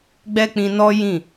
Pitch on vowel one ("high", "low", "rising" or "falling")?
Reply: high